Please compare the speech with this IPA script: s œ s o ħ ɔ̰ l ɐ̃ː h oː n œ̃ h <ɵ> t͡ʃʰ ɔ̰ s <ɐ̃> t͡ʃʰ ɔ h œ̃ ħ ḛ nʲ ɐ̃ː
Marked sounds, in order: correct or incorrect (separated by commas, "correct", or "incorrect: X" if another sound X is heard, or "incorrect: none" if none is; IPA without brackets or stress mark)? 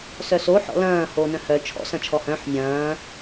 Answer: incorrect: œ, correct